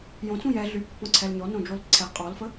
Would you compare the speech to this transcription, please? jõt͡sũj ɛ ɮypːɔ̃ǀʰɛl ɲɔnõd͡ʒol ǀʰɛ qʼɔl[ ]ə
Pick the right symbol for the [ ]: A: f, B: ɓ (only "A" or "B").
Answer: A